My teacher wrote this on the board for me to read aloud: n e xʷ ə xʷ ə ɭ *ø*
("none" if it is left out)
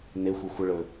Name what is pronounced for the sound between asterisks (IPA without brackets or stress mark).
ɵ